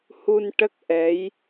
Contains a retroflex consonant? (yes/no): yes